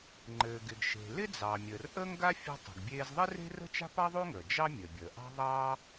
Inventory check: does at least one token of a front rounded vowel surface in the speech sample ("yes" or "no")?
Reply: no